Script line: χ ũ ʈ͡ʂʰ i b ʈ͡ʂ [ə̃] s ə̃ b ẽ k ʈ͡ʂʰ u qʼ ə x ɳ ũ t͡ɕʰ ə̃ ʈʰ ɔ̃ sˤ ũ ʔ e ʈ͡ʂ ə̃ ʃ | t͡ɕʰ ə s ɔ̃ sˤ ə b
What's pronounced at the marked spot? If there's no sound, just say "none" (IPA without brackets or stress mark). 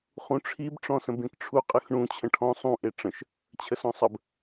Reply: ɔ̃